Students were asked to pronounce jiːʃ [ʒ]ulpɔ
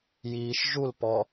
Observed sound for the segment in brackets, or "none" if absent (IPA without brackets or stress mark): ʒ